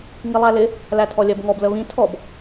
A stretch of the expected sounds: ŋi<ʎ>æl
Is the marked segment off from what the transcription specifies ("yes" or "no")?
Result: yes